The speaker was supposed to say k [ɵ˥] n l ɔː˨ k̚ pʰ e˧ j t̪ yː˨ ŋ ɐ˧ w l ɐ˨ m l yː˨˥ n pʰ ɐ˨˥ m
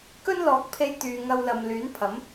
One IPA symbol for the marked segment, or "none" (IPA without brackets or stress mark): ɵ˥